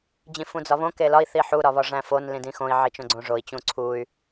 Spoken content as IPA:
d͡ʑ ĩ f ũ d͡z ɒ β õ k e l ɒ i̯ θ i ħ u ɾ ɒ β ɒ ʐ æ̃ f o n l ĩ d ĩ x õ i̯ ʕ i t͡ʃ õ ɡ͡ǀ õ ʐ o i̯ t͡ɕ ũ ǀʰ u y̯

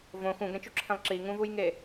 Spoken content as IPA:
v õ x ũ ɡ ɾ ɛ̃ t͡ʃ u ǁʰ ẽ lˠ ǁ i ŋ ũ v u j ŋ e

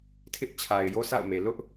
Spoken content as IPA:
tʰ ɪ˦ ʔ t͡ɕʰ a˨ ɪ̯ j o˦ sʰ a̰˦˨ ʊ̯ m e˨ l ʊ˦ ʔ

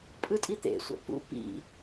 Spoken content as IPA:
pʼ ɯ tʼ i t̪ ḛ sʷ a̰ p ṵ p ḭ

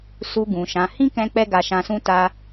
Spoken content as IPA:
s u˧ ɡ ũ˨ ʃ ã˨˦ h ĩ˦ k ɛ̃˧ k͡p ɛ˦ ɡ a˧ ʃ ã˧ s ũ˦ t a˧

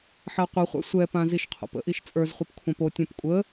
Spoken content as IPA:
ħ a qʷ ə χʷ a̰ sʷ ɛ p ã z i ʃ qʰ o̰ p ə̰ ʔ i ʃ t͡sʼ ə˞ z χʷ ɛ p kʷʰ ã p o tʲ ɛ̃ p kʷʼ ə

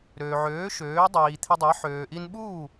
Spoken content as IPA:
ɾ øː˩ ʕ øː˩˥ ʃ øː˩˥ dˤ iː˩ t̪ʰ i˧ dˤ e˩˥ ħ øː˩ ʔ i˧ n ɓ uː˥˩

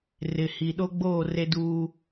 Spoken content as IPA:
r ɪ˨ h i˨ ɗ o˦ ɡ͡b oː˦˨ r e˦ d uː˦

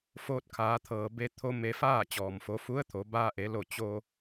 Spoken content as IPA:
f oː˧ t̚ kʰ aː˩˧ t̪ʰ ɤː˩ b e˧ t̪ʰ o˧ m e˧ f aː˥˨ t͡ɕ ɔː˩ m f o˩˧ f u˧˥ ə̯ t̪ʰ o˩˧ b aː˧ ʔ e˩˧ l o˧˩ t͡ɕ o˧

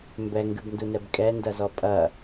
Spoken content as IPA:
m b ɛ ŋ ɡ ɨ b n d u n ɛ b kʼ ɛ n d ɐ z ɔ pʼ ɐ

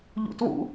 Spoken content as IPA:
ʎ ṵ t w ṵ

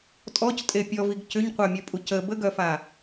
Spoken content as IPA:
tʼ ɔ c tʼ e pʲ ɔ v i ɡ c ʏ ɲ qʷ œ mʲ œ pʼ u c ə b ə ɡ œ f a

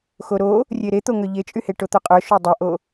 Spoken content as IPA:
x o ɾ o | rʲ e ɾ e t̪ o ŋ œ ʎ e t͡ʃʼ y h e ʈ o t̪ œ qʼ œ ʃ o dˤ œ ʔ o

